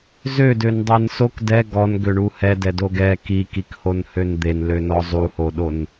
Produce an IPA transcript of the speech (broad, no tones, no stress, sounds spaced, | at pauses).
z ø d ø n dˤ e n s o k d ɛ ɡ ɔ n ɡ ø ɳ u h ɛ d ɛ d o ɡ ɛ k i k i k h o n h ø n d̪ e n l ø n ɔ zˤ u h o ɗ o n